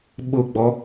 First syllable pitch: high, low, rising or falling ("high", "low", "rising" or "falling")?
falling